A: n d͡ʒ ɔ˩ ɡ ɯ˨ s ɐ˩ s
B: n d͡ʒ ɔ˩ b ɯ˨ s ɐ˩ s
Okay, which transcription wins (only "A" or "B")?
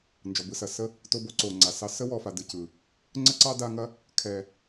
B